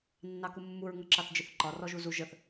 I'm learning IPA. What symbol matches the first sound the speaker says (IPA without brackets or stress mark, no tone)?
nː